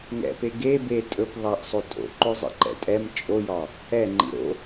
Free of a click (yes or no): no